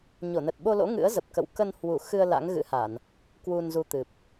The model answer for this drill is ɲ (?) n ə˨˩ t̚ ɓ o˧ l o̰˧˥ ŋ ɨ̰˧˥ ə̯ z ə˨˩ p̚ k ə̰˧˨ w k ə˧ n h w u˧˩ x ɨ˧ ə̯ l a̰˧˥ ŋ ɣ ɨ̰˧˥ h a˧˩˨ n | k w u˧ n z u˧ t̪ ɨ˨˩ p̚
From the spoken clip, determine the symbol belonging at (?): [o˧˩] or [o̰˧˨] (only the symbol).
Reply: o˧˩